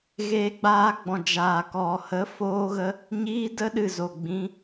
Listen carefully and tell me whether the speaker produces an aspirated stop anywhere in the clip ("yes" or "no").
no